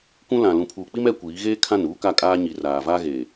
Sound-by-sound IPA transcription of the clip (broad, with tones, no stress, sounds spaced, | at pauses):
kʷ ũ˦ l ã˨ l ũ˨ pʰ uː˨ k͡p i˦ m ɛ˦ kʷ iː˨˦ ɣ eː˦ kʰ ã˦˨ n uː˦ k a˦˨ kʼ aː˦ ɲ i˨ r aː˨ v aː˦ ɣ eː˨